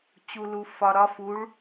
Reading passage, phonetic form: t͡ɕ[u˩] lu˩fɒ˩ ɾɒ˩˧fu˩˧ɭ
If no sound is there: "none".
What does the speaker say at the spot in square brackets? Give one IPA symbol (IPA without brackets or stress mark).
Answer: u˩